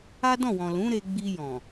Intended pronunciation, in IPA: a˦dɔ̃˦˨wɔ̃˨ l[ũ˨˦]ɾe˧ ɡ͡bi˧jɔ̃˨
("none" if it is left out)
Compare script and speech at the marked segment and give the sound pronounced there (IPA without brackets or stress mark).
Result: ũ˨˦